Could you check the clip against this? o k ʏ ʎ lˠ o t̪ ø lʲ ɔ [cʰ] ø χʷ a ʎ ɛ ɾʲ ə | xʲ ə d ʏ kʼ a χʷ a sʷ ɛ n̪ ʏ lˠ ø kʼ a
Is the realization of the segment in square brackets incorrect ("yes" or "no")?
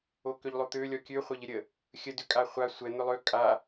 yes